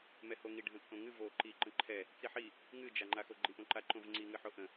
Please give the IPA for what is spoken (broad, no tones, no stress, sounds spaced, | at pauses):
m ɛ h o ŋ i ɖʱ ə̃ t͡sʼ õ ŋ ɨ v o ǃ i ǃ ə̃ ǃʰ ɛ | t͡s i ħ i | ŋ ɨ d͡ʒ a ŋ͡ǃ a x o ɡ͡ǃ i ʔ õ ǃ a ǃ õ v ŋ͡ǀ i ŋ ɨ ħ o ʔ ə̃